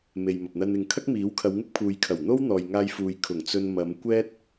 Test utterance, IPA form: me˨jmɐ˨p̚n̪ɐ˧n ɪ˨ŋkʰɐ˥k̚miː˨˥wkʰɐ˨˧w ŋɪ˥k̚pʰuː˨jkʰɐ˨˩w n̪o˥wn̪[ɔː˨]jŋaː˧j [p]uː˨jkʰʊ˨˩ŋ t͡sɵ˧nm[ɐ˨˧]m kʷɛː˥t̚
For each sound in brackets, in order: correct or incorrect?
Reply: correct, incorrect: f, correct

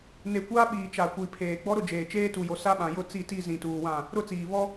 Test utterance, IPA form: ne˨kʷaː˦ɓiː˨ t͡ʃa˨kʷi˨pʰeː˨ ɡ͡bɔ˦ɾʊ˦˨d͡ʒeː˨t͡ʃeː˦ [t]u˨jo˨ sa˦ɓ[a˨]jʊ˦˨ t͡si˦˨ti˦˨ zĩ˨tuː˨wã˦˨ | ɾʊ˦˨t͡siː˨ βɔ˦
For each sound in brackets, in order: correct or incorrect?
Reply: correct, incorrect: ã˨

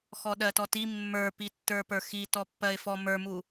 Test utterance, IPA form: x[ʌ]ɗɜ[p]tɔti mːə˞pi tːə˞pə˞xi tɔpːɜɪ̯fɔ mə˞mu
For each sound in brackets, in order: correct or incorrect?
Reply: incorrect: ɔ, incorrect: none

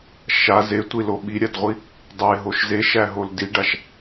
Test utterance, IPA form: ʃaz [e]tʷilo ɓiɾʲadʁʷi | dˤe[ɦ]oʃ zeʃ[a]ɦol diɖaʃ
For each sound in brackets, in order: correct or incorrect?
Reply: correct, correct, incorrect: æ

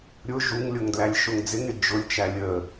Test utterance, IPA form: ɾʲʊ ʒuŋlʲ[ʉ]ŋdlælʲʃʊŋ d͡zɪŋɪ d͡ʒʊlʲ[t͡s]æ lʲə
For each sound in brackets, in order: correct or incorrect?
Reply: incorrect: ʊ, incorrect: t͡ʃ

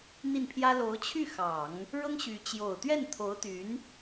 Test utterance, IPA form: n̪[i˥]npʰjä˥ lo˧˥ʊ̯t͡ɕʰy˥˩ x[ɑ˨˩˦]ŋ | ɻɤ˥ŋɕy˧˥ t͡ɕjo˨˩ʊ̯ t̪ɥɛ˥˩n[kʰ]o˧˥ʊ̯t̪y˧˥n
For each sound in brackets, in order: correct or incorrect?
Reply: incorrect: i˥˩, correct, incorrect: t̪ʰ

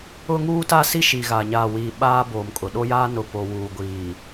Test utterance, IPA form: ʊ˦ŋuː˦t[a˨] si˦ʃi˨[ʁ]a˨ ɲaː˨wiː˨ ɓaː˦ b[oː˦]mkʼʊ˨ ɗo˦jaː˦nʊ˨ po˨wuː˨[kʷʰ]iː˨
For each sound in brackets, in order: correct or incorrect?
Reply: incorrect: a˦, incorrect: ɣ, incorrect: oː˨, incorrect: ɡʷ

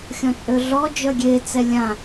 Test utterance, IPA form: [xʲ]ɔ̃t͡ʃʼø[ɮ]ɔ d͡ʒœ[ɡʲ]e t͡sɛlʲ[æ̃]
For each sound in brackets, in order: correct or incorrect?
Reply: correct, correct, correct, incorrect: ã

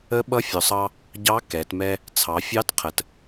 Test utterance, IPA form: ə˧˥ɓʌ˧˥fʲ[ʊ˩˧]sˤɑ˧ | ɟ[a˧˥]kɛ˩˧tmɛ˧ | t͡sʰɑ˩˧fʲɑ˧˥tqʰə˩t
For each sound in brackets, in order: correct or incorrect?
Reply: correct, incorrect: ɑ˧˥

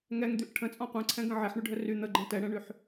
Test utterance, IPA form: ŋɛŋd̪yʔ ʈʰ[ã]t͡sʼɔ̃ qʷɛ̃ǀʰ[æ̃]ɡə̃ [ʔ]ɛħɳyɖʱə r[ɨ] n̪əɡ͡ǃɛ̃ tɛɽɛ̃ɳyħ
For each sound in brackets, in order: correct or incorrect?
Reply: incorrect: ə̃, incorrect: ɛ̃, incorrect: ʕ, incorrect: y

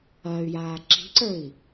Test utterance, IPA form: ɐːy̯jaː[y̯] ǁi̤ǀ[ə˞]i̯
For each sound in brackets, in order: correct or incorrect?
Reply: incorrect: none, correct

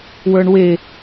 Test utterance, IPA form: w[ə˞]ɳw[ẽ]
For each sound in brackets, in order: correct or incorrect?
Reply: correct, incorrect: e

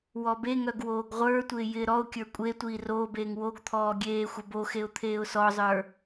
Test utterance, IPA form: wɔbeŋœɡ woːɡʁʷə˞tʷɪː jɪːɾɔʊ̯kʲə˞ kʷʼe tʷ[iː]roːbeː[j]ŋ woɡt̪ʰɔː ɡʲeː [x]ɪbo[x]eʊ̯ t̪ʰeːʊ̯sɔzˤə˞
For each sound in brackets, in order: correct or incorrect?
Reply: correct, incorrect: none, incorrect: xʷ, correct

